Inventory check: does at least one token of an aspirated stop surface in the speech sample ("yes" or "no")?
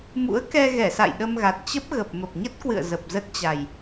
no